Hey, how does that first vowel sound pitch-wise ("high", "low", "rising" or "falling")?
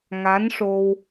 rising